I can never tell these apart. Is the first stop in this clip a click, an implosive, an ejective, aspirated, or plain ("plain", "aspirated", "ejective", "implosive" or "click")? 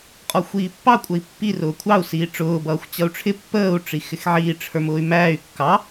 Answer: ejective